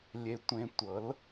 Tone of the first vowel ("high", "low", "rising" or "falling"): low